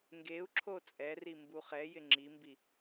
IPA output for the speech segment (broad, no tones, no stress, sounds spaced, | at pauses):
ŋ ɡ e u̯ ǁʰ o t͡sʼ ɛ r i m b u χ ɛ j ɪ ŋ͡ǁ i m b i